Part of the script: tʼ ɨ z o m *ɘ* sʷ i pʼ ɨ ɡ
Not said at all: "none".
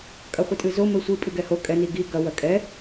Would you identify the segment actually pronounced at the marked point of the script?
ɘ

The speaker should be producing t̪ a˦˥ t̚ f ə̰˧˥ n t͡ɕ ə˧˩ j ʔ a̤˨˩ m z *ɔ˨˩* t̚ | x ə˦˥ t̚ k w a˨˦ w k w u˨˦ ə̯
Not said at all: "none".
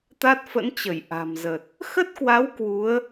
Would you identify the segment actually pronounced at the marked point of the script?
ə˨˩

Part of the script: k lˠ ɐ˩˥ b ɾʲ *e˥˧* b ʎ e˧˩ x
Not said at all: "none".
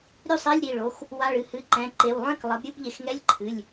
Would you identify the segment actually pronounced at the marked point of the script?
ɨ˥˧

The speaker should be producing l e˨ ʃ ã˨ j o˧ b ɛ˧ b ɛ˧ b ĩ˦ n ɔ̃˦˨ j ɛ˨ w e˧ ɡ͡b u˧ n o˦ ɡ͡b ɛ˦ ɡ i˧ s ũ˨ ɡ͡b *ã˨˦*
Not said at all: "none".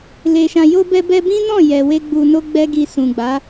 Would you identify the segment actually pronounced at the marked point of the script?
a˨˦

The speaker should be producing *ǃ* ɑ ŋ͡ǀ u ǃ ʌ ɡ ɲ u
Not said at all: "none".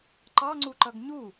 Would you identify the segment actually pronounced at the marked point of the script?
ǃ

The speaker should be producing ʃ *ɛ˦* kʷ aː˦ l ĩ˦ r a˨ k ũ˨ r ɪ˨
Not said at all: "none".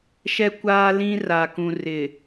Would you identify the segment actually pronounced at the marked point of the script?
ɛ˦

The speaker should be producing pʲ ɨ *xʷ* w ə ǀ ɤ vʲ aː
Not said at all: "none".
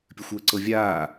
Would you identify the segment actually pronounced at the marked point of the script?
xʷ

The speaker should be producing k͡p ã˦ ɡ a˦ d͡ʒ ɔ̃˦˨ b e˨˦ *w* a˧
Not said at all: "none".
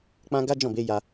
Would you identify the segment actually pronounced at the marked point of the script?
j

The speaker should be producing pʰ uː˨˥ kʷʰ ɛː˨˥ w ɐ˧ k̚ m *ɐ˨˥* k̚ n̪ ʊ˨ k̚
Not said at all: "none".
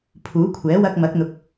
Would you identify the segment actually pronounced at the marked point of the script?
ɐ˨˥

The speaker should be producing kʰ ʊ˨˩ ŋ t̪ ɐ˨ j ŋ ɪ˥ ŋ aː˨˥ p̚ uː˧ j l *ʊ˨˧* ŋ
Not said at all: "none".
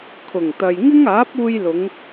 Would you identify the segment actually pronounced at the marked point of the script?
ʊ˨˧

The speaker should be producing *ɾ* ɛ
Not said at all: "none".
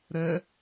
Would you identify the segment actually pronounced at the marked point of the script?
ɾ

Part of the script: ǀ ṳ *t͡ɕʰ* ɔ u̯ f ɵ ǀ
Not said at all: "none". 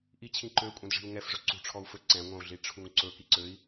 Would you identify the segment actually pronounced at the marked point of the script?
ʈ͡ʂʰ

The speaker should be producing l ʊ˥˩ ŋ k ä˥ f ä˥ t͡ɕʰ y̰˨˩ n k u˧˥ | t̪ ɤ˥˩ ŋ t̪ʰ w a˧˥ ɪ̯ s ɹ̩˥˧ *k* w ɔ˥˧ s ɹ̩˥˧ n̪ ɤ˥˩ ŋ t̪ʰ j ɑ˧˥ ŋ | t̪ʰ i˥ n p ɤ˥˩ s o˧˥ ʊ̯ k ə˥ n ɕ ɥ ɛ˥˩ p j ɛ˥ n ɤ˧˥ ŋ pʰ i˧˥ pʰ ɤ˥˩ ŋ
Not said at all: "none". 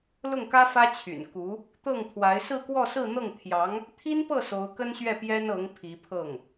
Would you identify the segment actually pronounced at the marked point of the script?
k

